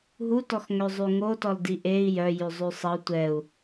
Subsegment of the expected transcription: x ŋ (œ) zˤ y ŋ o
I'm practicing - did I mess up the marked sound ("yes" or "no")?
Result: yes